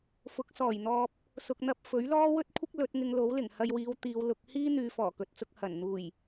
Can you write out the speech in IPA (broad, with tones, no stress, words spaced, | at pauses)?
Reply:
fʊ˨˥k̚sɔː˨˩jn̪ɔː˧p̚ | sʊ˨k̚n̪ɐ˧p̚ fɵ˨˥ɥlɔː˥ wɵ˥t̚kʷʰɪ˥k̚ lɵ˨˥t̚ŋɪ˧ŋ lo˨˥wlɪ˨˩ŋ hɐ˧jwiː˨˧w t̪iː˨˧w lʊ˨˥k̚ hiː˥ n̪yː˨˧fɔː˨˩kɵ˨t̚t͡sʊ˧k̚ hɐ˨˩nn̪uː˨˩j